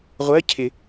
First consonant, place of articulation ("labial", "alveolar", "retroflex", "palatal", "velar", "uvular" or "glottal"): uvular